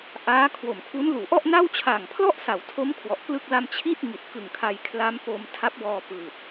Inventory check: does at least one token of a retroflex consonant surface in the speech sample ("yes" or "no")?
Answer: no